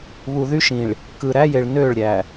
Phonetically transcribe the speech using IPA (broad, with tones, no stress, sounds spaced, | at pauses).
β u˨ ð y˦ ʃ ĩ˨ ɭ | k ɯ˨ ɾ æ˦ j e˨ ɭ n ø˦˨ ɭ ɾʲ æ˨